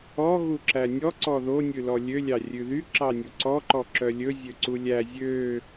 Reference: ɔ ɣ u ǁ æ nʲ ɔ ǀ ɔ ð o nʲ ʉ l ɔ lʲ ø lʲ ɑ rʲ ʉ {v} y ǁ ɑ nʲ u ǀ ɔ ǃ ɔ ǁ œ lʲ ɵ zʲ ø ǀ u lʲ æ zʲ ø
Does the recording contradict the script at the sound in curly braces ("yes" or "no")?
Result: yes